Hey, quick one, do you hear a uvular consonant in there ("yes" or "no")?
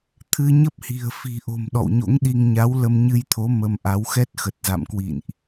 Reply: no